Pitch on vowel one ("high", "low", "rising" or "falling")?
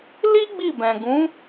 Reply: high